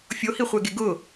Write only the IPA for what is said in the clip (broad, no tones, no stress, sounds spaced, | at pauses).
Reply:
fʲ o h i χʷ ɛ ɡ e ɡ ʊ